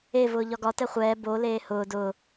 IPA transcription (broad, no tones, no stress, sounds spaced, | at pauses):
e v ʊː ʎ ɒ ɡ ɒ t ɛ χʷ ɛː b o l eː h ʊː d ʊː